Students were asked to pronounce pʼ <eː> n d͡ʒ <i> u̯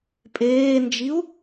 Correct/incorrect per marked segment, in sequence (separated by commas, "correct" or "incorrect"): correct, correct